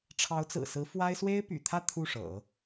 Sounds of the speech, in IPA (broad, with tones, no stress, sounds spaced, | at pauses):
ʈ͡ʂʰ ɑ˧˥ ʊ̯ t͡s ɹ̩˨˩ s ɹ̩˧˥ f w a˥ ɪ̯ s w e˥ ɪ̯ p y̰˨˩ t̪ʰ ä˥˧ t̪ʰ u˥˩ ʂ ɤ̰˨˩˦